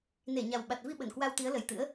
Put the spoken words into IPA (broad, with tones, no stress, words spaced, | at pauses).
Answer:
ne˧˩ɲa˨˩w ɓa˨˩t̚vi˧ɓə˧˩n kwa˧wt̪i˨˦ə̯lə˨˩jt̪ɨ̰˧˥ə̯